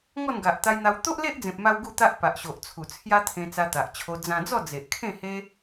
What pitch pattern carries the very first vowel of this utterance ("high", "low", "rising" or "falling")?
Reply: falling